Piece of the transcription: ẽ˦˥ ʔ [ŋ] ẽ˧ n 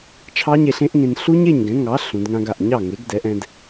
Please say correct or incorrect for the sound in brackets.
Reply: correct